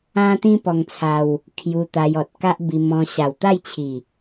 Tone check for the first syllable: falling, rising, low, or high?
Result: high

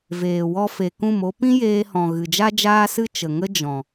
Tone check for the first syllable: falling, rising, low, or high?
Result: low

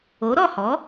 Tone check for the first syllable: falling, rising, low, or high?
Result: rising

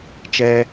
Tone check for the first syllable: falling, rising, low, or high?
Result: high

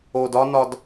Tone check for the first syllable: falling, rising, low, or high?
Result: low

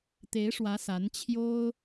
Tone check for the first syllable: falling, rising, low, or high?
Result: rising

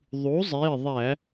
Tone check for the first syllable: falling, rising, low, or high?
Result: rising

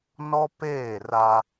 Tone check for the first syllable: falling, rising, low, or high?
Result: high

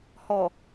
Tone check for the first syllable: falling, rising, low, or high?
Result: low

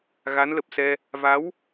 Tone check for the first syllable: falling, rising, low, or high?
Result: rising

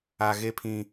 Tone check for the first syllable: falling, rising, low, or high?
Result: high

